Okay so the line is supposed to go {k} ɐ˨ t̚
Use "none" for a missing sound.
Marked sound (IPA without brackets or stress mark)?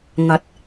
ŋ